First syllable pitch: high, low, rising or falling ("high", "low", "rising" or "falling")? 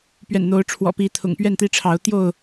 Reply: low